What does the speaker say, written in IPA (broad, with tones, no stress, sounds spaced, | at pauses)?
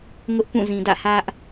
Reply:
ŋ ʊ˦ ʔ p ũ˦˨ z ĩ˨ d ä̰˦˨ h ä˦ ʔ